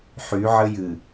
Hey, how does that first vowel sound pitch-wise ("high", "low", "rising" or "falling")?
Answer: rising